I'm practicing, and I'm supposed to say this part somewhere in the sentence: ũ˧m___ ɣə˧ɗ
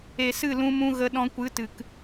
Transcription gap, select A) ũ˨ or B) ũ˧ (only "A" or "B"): B